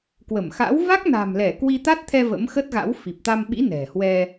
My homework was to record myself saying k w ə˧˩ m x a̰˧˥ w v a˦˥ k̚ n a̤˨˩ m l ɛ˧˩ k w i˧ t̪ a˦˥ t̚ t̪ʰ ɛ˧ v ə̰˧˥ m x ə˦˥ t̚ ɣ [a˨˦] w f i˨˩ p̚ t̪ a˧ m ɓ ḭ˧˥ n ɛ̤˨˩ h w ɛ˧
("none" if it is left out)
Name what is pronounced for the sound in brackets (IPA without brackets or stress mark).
a̰˧˥